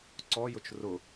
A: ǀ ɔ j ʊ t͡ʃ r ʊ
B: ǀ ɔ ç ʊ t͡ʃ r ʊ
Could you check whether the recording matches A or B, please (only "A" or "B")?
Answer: A